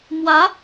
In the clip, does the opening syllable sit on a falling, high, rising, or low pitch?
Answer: rising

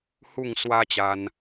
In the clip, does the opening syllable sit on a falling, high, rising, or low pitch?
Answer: falling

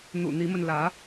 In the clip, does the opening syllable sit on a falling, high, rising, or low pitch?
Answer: low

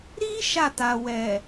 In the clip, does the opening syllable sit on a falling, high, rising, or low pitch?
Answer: high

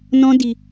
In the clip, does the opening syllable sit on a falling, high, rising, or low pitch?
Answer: high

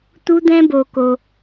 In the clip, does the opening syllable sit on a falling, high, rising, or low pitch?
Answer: high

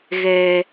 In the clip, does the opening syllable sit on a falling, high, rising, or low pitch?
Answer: low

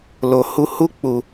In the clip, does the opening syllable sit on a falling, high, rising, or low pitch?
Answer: low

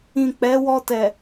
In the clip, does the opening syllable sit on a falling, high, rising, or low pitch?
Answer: low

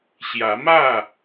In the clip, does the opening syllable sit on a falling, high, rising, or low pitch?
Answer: rising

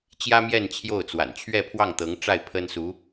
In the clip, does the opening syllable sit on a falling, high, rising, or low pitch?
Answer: high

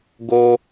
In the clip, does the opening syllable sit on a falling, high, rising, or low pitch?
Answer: high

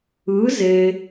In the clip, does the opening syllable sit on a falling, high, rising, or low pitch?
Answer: rising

